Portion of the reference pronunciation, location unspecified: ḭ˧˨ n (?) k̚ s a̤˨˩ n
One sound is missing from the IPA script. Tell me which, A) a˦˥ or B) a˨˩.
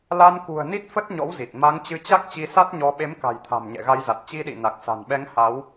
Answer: B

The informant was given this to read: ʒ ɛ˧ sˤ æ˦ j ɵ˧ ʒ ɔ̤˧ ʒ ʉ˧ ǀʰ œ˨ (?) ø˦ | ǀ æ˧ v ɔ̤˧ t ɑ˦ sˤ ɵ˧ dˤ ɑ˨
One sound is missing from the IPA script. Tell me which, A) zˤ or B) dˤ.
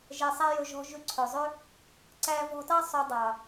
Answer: A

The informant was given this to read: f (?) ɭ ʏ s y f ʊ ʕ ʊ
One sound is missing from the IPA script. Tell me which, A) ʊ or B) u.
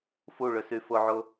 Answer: B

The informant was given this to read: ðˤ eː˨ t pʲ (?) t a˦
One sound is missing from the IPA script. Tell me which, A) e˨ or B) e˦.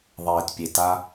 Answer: A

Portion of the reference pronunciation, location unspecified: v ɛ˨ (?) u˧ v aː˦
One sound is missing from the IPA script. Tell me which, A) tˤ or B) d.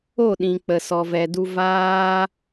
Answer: B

